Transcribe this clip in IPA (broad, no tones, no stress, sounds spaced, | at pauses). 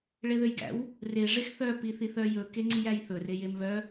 ɭ e ð ø j ɡ æ̰ w | r e ʐ e x θ œ p i θ i θ œ j ɵ k e ŋ͡ǀ i j æ j θ ɵ r e j e m β œ